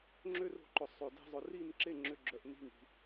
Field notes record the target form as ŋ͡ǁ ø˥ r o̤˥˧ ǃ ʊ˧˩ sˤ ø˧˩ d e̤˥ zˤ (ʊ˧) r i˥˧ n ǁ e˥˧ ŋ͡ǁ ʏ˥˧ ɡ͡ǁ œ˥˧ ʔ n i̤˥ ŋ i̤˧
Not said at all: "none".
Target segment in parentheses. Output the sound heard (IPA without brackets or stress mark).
ʊ˧